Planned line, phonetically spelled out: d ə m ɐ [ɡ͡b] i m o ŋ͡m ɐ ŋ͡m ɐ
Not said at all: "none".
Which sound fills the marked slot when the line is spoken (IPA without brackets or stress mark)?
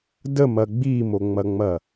ɡ͡b